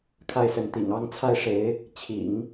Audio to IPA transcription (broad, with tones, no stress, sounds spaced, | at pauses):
kʰ a˥˩ ɪ̯ s ə˧˥ n t̪ ḭ˨˩ ŋ ɑ˥ ŋ t͡sʰ a˥˩ ɪ̯ ʂ e˧˥ ɪ̯ | t͡ɕʰ ḭ˨˩˦ ŋ